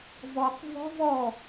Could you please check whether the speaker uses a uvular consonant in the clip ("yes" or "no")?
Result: yes